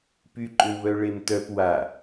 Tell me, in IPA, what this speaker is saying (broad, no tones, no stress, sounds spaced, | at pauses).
p y ǃʼ ʏ w β œ ɭ e m t œ p w a